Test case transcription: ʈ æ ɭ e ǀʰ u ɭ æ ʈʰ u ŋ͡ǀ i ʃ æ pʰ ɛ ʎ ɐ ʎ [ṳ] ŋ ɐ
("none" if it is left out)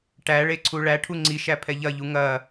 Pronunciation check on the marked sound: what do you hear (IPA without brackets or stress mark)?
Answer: u